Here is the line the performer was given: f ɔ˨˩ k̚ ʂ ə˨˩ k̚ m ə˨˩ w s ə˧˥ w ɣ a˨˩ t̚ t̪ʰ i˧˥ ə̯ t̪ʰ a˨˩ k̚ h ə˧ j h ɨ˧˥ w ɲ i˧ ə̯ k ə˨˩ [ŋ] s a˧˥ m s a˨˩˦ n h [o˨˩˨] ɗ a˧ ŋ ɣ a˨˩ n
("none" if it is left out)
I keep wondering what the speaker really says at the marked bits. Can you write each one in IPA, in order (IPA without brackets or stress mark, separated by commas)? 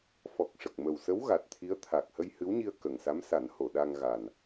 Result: ŋ, o˨˩˨